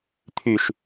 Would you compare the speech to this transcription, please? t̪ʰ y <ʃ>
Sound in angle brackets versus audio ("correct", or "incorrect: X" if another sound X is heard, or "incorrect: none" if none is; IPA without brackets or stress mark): correct